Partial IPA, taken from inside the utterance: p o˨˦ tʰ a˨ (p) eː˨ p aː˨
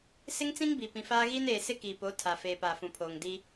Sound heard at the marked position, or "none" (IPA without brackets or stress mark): f